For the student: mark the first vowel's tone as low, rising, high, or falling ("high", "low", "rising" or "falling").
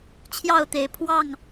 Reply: falling